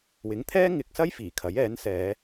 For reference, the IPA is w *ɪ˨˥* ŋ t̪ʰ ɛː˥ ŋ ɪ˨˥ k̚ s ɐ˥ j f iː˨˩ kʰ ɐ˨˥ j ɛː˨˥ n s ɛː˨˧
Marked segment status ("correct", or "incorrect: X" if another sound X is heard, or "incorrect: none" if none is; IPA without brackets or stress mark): correct